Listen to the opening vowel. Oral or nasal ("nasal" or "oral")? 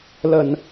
oral